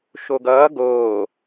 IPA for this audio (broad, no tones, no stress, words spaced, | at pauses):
ʃoɡʌː ɡoː